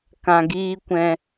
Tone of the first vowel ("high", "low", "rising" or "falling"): low